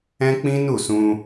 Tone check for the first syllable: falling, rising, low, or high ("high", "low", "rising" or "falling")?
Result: high